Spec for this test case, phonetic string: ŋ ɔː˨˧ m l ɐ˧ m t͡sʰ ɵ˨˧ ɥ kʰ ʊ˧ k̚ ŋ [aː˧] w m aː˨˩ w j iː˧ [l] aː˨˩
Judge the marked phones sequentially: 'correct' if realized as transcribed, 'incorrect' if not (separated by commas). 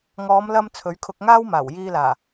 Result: incorrect, correct